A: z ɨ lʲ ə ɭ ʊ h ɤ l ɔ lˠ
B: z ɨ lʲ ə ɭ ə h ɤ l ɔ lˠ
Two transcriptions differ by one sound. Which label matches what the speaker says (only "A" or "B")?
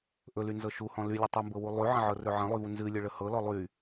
B